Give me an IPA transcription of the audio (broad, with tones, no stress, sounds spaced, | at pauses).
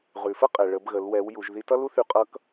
ʁ ʉ˩ f ə˥ qʼ ɛ˩ ɭ ə˩˧ b ɣ ə˩˧ l w ɛ˩˧ w j u˩˧ ʒ ð i˧ t ʌ˥ l u˥ θ y˧ qʼ ʌ˧˥ k